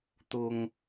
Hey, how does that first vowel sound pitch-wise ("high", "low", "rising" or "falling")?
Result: low